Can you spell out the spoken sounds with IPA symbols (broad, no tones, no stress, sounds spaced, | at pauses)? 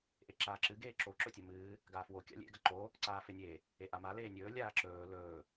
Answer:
ʔ e ǁ aː ǁ ɨ ɡ eː ǁ o ǁ ɵ tʲ ɐ m ɨː | ɡ aː f w o kʲ a̰ lʲ ḛ ɡ ɐ ǃ o | ǀ aː f e nʲ e | e ʔ a m a l eː nʲ ɵː lʲ aː ǁ ɵː l ɵː